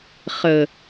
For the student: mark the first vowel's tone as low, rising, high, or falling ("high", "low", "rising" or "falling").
low